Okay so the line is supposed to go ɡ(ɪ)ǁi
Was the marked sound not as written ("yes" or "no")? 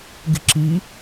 no